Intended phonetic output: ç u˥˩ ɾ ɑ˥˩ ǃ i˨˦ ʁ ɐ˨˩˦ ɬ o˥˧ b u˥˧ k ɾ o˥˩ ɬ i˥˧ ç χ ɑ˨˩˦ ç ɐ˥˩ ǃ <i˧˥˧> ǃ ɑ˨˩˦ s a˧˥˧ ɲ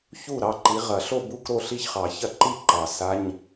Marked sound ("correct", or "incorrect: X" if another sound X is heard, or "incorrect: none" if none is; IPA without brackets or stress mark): incorrect: i˥˧